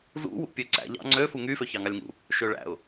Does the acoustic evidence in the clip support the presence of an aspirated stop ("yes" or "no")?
no